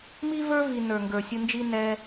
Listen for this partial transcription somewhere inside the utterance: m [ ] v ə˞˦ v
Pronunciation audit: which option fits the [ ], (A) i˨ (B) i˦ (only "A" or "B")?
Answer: B